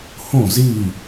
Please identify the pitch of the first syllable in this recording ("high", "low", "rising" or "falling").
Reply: falling